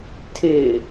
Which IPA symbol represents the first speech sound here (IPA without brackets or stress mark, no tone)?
tʰ